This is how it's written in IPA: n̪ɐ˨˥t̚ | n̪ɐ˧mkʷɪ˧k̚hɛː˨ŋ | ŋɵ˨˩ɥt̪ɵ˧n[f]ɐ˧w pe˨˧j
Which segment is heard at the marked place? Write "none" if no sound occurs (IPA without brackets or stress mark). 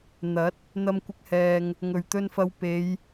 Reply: f